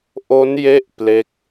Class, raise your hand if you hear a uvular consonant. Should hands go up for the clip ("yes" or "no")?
no